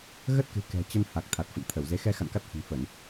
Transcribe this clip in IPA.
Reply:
ɣə˦˥t̚kɨ̤˨˩ kɛ̤˨˩ t͡ɕə˧nha˨˩k̚ t̪ʰa˨˩t̚fə̰˧˨nt̪ʰə˧˩wze˨˦ xɛ˧xa̰˧˨n ka˦˥t̚hə̤˨˩nfə˧˩˨n

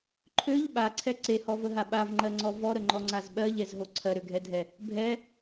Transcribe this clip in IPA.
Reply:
ǃʰøʎ ɓaǀʰɛ ǀehɔvəɦa ɓavŋ͡ǃɜŋ͡ǀɔ vɔɾəŋ͡ǃɔŋ͡ǀaz ɓɜʎɛzɦo ǀʰɜɾøɡʱɛdʱɛ | bʱɛ

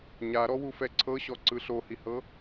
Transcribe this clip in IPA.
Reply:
ɲaɾɔ wufɛǀʰɤɕɔ ǀɯɬohihɤ

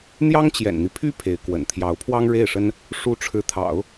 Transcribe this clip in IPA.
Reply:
n̪jɑ˥ŋt͡ɕjɛ̰˨˩nn̪i˦pʰy˥ pʰe˧˥ɪ̯kwə̰˨˩n t̪ʰjɑ˧˥ʊ̯pʰwɑ˥ŋɻe˥˩ɪ̯ʂə˥n | ʂu˥ ʈ͡ʂʰɻ̩˧˥ t̪ʰɑ̰˨˩˦ʊ̯

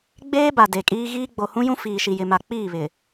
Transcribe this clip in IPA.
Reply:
ɡ͡beː˦ba˨ de˨kʼiː˦ ɣiː˦ ɡ͡bo˨hũ˦jũ˦ fiː˨ʃi˨jɪ˨ma˨ k͡piː˦˨βɪ˨

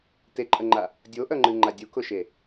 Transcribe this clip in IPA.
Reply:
teǃʼəŋ͡ǃa | dʲoʔœŋ͡ǃɨŋ͡ǃa dʲukʊʃe

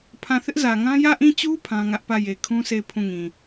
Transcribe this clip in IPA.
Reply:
pʰã˦˨ θɪ˦ʔzä˨ŋã˦ jä˦˨ʔĩ˦˨t͡ɕu˦ pʰã˦ŋä˦ʔ pä˦˨je˨ kʰũ˦se˦˨ɪ̯ pʰũ˦˨ŋĩ˨

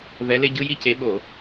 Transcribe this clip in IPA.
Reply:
vɛ˨˦le˦ ɟɯ˦ji˦ce˨˦ ɓo˧˩˧

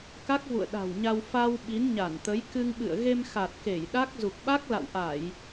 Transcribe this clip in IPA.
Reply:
ka˦˥k̚vṵ˧˨ə̯ɗa̤˨˩wɲa˧w fa˧w ɓi˨˦nɲa˧˩nt̪ə˨˦j kɨ˧ŋɓɨ̰˧˨ə̯ ɣe˧mxa˨˩t̚ ke˧˩jɗa˦˥k̚ zu˨˩k̚ɓa˦˥k̚la̰˧˨wʔa˧˩˨j

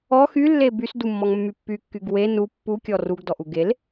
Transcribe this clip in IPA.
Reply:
ɔ xylːe bysdumːɔŋmːy pːykːyɡ we nu pːukʲɔ ruɡdɔʔu ɡel

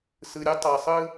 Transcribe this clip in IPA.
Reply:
sɯ˨ɾʲu˦tˤɑ˨ sˤɯ˦

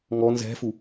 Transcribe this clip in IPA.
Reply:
ŋɔ nzɛ̤fu

